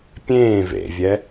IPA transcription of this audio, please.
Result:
pʲẽː vḛvʲɛ

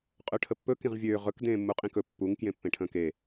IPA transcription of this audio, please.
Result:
qʼøʈʰəpːɵ kĩʁvʲøː ʁɵk dẽːmːuqʼĩkɵ pːuŋ kjẽpːẽʈʰə̃ːke

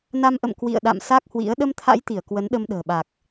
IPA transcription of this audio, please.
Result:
na˧mʔə̰˧˨m kwḭ˧˨ə̯ɗa̰˧˨m sa˦˥k̚hwḭ˧˥ə̯ ɗə˧mt̪ʰa̰˧˥jt̪i˧˩ə̯ kwə˨˦nɗə˧mɗə̤ː˨˩ ɓa˨˩k̚

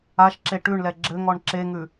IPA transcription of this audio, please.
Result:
aʃǁe ʈʉɳlɛ ɡ͡ǁɘŋɔɳ ǁeŋʉ

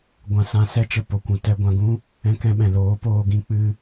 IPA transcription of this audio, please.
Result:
ɡʷã˧sã˧ sɛ˦t͡ʃə˧ po˨kʷũ˨ tɛ˧ɡʷã˧ɡũ˦ | ɛ̃˧kɛ̃˧ɓɛ̃˨ loː˨˦poː˧ ɡĩ˧k͡pɨ˧

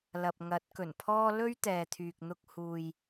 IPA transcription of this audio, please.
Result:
lɐ˨p̚ŋɐ˨˥t̚kɵ˨˩npʰɔː˥ lɵ˥ɥt̪ɛː˨t̪ʰyː˨k̚n̪ʊ˧k̚ huː˨j

